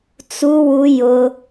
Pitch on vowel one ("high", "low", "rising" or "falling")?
high